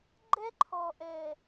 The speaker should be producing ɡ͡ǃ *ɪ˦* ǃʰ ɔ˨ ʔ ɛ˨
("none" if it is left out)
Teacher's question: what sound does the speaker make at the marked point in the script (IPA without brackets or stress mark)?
ɛ˦